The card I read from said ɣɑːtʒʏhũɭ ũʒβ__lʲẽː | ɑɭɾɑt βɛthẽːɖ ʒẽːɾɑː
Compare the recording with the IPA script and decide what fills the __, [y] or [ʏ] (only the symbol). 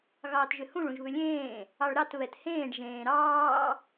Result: ʏ